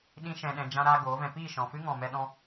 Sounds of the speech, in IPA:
ɗĩ˦ʃɛ̃˧ɗɛ̃˧ d͡ʒã˦ɾaː˦ ɡoː˨˦vɛ̃˧ piː˦˨ʃɔ̃˨fɨ˦ ŋɔ̃˧mɛ˦ɗɔ̃˦

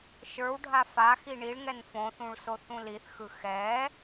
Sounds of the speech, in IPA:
ʃə˞wɖʱa faxi ɳiɭŋɛn fõθũɭso θũliθxɯ xɛ

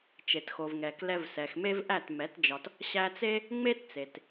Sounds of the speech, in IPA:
t͡ʃe˨txo˨vŋɛ˨ klɛ˧vsɛ˨xme˦v ʔæ˦˨tmɛ˨˦td͡ʒɒ˧t | ɕæ˧t͡se˦ | ŋ͡me˦tt͡se˨t

